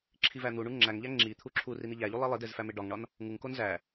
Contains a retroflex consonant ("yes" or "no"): yes